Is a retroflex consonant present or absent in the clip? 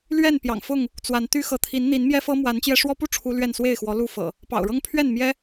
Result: present